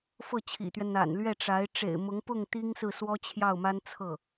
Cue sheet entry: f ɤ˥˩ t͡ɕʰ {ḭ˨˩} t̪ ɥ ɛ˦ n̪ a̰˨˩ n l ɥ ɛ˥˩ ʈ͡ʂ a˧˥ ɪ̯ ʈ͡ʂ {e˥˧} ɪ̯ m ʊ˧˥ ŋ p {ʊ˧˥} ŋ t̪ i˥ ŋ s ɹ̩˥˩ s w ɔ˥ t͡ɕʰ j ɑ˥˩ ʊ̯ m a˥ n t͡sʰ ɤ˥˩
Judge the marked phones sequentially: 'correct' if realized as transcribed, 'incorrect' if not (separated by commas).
correct, incorrect, incorrect